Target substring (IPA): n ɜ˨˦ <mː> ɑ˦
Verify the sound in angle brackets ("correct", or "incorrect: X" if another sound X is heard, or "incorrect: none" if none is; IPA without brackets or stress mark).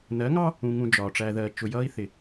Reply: incorrect: ŋ